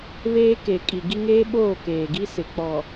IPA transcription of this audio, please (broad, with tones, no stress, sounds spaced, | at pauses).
β eː˦ k e˨ kʼ i˨ ɡ i˦ ŋ eː˦ ɓ oː˦˨ k eː˨ ɡ i˦ s ɪ˨ k͡p ɔ˨